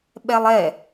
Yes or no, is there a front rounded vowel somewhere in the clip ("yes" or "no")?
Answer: no